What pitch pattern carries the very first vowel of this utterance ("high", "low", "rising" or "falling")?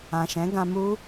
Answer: low